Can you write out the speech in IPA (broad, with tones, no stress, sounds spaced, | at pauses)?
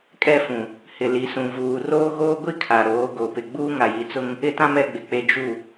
kʼ ɛ˦ f ũ˨ | h ɪ˨ l i˨ s ũ˨ v uː˨ r oː˦ ɣ oː˦ ɡʷ i˦ kʰ a˨ ɾ oː˨˦ ɡ o˨ p ɪ˨ ɡ͡b uː˦ ŋ a˨ j i˨ t͡s ʊ˦ ŋ | ɪ˦ t ã˦ m ɛ˦ ɡ͡b ɪ˨ k͡p e˦ d͡ʒ u˦˨